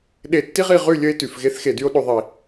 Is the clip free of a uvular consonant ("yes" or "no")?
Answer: no